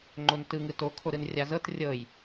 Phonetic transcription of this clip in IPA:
ŋ͡ǃ o n t ɯ ŋ ɯ t o kʰ o ɾ ɯ n rʲ a z ɤ t rʲ ɤ j

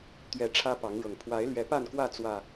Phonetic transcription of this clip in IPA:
t̪ ɥ ɛ˨˦ ʈ͡ʂʰ ä˦ p ɑ˨˦ ŋ ɻ ɤ˨˩ ŋ pʰ w a˨˦ ɪ̯ l ɥ ɛ˨˦ p a˥˨ n k w ä˥˨ t͡s w ä˨˩

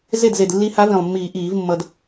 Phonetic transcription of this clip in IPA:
z e˥˩ d z e˨˩ d lː i˧˥ h a˧˥ v ĩ˨˩ lˠ mː iː˨˩˦ ʔ iː˨˩˦ v mː ʌ˧ d

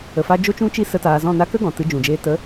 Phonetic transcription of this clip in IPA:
ə˨ f a˧ d͡ʒ o˦ t͡ʃ ũ˦ t͡ʃ i˦ s ə˧ t aː˧ z ɔ̃˦˨ n a˦ k ə˦ ɡ ɔ̃˨ t ɨ˨˦ d͡ʒ ũ˨ d͡ʒ eː˧ t ə˨˦

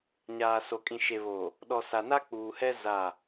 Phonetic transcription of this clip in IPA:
ɲ aː˨ s o˨ kʼ ĩ˨ ʃ e˨ β oː˨ | ɗ ɔ˨ s a˨ n a˦ k͡p uː˨ h ɛ˦ z a˦˨

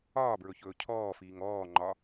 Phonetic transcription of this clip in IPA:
ɒː b ɹ ɵ ç ɵː cʰ ɔː f iː ŋ ɔː ŋ͡ǃ ɒ

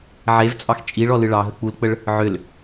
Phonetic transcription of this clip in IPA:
ʕ e v t͡sʼ ɑ x t͡ʃʼ i ɭ ɔ l ɨ ɭ ɑ ɦ ə k͡p u l k͡p ə ɭ | ʕ ʏ l

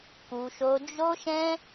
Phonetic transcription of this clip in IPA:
k u˧ ʃ o˧ d͡ʒ o˦ ʃ ɛ̃˦

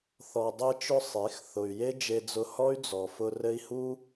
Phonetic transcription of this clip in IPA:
θ ɔ˨ dˤ e˧ t͡ʃ ʊ˧ sˤ e˨˦ x θ ʊ˨ y̯ j e˦ d͡ʒ e˧ d͡z ʊ˧ h ɔ˦ y̯ d͡z ɔ˨ f ʊ˧ r ɘ˧ i̯ h u˦

